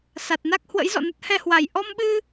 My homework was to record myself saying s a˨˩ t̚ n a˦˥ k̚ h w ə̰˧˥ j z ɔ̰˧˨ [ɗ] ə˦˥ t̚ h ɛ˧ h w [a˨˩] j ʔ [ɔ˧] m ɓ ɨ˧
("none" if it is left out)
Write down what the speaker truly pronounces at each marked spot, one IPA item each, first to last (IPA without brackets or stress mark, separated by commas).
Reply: n, a˨˩, ɔ˧